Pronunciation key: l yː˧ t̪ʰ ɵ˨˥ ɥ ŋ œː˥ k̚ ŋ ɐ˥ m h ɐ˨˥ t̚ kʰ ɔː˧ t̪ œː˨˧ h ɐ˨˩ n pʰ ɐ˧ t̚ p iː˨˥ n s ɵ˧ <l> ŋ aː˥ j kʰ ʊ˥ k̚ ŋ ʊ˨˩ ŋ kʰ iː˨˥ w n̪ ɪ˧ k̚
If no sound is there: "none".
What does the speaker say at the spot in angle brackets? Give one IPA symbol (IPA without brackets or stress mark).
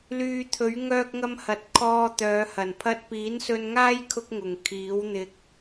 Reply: n